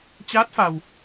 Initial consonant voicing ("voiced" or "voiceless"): voiceless